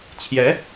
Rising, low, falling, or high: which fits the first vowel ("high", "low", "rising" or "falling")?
rising